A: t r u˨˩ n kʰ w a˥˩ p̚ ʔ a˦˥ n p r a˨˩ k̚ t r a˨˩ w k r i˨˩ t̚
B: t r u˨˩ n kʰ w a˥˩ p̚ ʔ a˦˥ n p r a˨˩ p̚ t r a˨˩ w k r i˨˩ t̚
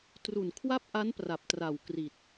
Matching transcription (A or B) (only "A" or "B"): B